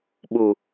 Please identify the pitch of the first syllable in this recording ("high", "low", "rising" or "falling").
low